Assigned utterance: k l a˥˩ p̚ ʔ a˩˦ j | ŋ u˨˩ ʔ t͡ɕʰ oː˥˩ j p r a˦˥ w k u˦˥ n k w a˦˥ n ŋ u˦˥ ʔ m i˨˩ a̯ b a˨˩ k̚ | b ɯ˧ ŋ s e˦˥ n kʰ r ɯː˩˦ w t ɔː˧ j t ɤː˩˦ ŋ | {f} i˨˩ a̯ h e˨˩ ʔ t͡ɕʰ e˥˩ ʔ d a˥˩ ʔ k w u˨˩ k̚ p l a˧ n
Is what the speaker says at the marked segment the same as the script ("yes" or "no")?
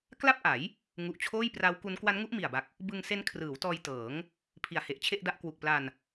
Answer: no